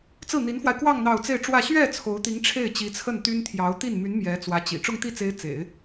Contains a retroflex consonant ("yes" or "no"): yes